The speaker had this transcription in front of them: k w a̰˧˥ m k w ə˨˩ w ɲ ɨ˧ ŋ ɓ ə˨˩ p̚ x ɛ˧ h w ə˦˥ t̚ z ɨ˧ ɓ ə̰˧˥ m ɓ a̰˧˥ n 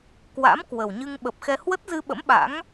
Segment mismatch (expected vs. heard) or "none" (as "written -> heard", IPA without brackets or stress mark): n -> ŋ